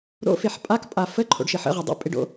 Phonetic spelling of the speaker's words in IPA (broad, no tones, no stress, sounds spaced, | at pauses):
ɾ o̰ f e ħ pʼ a k pʼ a f ə ǃʰ o̰ ɖ ʃ ɪ ħ ə̰ ʁ e dˤ ə̰ pʼ ɪ ɖ o̰